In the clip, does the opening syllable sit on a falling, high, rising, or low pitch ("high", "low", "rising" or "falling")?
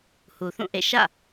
low